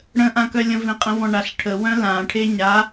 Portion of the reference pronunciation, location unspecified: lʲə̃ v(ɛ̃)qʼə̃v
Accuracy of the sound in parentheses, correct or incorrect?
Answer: incorrect